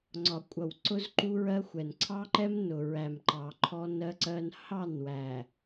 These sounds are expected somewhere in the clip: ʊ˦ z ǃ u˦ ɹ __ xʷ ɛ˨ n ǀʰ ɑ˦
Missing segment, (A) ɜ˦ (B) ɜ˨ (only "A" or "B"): A